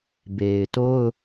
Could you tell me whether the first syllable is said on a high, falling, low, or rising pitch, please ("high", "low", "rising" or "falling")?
low